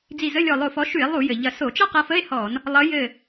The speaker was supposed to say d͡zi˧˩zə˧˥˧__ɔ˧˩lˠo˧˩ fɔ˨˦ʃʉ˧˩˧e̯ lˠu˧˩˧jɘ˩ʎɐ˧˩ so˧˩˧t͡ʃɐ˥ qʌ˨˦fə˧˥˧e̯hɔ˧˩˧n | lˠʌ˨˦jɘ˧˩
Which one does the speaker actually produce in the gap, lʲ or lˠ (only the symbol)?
lʲ